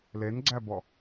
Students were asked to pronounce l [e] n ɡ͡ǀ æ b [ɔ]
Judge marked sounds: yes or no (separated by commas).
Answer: yes, yes